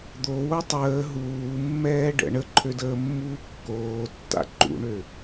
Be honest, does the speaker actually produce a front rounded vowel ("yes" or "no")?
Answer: yes